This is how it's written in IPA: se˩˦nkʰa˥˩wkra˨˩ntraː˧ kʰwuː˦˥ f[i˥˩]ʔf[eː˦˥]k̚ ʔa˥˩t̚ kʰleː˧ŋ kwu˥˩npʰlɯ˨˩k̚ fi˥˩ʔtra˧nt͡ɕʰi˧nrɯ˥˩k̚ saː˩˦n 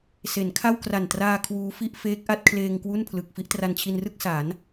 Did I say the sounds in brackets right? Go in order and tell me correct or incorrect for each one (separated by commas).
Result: correct, correct